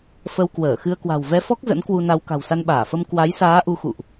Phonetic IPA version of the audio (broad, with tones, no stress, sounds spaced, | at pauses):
f ə˧ w k w əː˧˩ x ɨ˧ ə̯ k w a̤˨˩ w v ɛ˧ f ɔ˦˥ k̚ z ə̰˧˥ n k w u˧ n a˧ w k a̤˨˩ w s a˧ n ɓ aː˧˩ f ə˧ m k w a˨˦ j s aː˨˦ ʔ u˨˦ x ṵ˧˨ ʔ